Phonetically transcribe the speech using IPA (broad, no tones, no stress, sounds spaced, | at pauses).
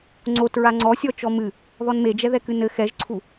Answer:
ŋ͡ǀ o t ɹ a ŋ͡ǀ ɔ sʲ ɔ t͡ʃ ɔ m ɨ | ð ɔ n m e d͡ʒ ɛ ð ɛ k ɨ n ɘ x ɛ ʒ ǀʰ u